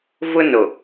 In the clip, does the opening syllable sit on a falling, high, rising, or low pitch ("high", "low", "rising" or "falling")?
high